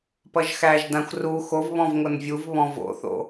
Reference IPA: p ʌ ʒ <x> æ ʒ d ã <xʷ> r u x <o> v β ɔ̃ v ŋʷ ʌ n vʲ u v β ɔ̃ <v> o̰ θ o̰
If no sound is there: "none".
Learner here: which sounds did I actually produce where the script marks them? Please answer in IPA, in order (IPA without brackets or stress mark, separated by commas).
x, xʷ, o, v